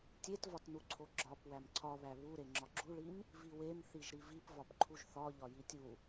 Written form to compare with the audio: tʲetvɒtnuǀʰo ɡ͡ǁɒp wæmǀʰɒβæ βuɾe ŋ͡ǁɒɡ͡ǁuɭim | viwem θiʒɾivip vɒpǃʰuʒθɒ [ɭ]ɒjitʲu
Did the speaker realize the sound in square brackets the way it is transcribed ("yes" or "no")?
no